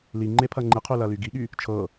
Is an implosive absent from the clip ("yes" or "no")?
no